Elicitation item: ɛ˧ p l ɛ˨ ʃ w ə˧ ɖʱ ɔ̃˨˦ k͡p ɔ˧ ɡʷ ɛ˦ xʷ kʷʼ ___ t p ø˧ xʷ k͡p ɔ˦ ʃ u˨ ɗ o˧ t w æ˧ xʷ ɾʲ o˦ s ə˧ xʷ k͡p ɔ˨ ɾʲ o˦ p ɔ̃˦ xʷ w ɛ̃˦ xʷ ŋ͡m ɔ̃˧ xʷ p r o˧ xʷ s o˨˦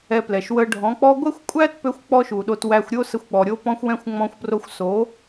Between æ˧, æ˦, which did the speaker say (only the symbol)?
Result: æ˦